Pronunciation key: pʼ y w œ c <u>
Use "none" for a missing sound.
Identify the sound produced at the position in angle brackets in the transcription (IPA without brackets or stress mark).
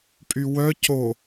o